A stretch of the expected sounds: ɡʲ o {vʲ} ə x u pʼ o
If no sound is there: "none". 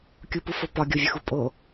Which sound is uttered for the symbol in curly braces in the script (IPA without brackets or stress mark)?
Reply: vʲ